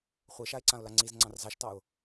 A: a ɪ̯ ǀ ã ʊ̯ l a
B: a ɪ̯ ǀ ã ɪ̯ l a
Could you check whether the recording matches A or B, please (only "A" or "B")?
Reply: A